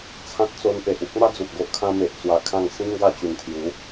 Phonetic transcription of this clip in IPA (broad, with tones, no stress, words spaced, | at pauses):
t͡sʰã˦t̚t͡so˧npe˨ʔ u˦k̚ma˦ d͡zu˨t̚ɡo˦ʔkʰã˦ me˨ʔt͡swa˧kʰã˥˧ŋ sĩ˦ŋɡa˧t͡ɕu˨˩nt̪ʰju˨˦